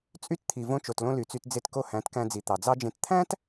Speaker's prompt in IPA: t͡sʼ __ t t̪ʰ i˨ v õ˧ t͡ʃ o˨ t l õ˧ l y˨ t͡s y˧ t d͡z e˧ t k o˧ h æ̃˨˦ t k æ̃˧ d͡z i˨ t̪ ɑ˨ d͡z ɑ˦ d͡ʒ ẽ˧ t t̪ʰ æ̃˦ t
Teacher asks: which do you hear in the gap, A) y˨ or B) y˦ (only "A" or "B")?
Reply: B